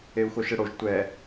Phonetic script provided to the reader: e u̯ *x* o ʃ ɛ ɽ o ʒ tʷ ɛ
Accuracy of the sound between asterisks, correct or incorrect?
correct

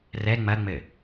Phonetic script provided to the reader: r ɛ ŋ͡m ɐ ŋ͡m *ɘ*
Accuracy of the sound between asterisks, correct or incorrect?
correct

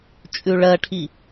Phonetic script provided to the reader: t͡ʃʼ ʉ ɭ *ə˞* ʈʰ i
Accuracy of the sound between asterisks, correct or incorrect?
incorrect: ɜ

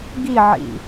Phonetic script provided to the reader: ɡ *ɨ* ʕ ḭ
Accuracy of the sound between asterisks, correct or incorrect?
incorrect: i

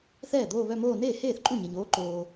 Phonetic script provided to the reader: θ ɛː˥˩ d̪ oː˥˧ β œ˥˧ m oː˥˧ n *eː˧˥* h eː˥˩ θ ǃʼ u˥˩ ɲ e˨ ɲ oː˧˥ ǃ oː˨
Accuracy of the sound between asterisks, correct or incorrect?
incorrect: eː˥˩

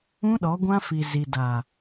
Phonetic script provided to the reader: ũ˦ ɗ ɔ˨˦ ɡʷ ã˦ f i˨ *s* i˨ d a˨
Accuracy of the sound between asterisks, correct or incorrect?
incorrect: z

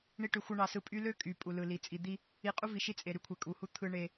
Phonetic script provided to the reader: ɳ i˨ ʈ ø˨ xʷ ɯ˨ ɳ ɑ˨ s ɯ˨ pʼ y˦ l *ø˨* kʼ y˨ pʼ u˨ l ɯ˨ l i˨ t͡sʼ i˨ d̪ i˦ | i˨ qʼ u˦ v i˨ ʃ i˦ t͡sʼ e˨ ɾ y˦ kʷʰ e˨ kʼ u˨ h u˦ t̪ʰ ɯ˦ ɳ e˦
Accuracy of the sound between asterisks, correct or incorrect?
incorrect: ø˦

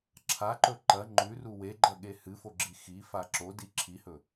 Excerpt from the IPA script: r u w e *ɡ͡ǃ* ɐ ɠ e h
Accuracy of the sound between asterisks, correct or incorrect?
correct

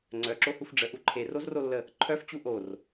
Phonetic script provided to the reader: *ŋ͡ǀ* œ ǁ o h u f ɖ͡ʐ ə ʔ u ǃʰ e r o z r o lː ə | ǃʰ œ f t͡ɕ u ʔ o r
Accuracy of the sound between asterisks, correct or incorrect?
correct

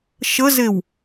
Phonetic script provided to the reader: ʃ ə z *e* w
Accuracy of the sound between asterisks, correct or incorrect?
correct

